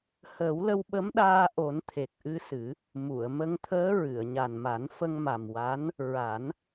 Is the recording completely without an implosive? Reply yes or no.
no